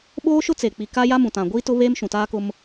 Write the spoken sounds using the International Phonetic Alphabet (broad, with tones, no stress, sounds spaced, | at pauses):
ɓ oː˦ ʃ ʊ˦ t͡s e˨ k͡p i˨ k a˦ j a˦ m ũ˨ t ã˨ ɡʷ iː˦ t ʊ˦ β e˦ m ʃ ũ˨ t aː˦ k ʊ˦ m